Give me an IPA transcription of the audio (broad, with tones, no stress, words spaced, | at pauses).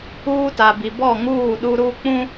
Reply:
uː˦ta˨bi˨ bɔ˦˨ŋuː˦˨ ɗu˦ɾu˦ k͡pũ˦